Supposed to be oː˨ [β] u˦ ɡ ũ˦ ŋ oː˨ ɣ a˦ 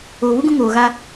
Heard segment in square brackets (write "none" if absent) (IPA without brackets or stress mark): β